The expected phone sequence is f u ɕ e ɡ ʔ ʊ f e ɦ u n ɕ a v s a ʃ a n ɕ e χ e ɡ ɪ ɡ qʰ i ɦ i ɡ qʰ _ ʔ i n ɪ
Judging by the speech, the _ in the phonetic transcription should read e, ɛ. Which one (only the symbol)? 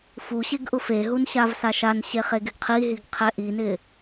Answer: ɛ